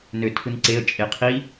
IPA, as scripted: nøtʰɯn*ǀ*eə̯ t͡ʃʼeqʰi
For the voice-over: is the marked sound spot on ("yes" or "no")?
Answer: yes